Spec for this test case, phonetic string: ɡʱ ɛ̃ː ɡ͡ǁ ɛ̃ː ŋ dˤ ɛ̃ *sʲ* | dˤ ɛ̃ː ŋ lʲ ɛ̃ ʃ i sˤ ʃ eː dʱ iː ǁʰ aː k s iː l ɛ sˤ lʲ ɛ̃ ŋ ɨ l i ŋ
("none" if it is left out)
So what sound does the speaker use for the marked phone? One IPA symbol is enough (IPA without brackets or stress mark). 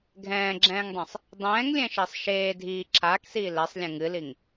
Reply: sˤ